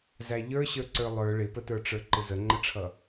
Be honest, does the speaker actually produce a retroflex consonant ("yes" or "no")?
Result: yes